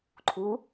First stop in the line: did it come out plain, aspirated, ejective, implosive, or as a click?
click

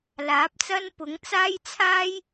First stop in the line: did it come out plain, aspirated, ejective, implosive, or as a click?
plain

